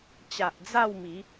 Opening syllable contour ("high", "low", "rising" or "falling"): low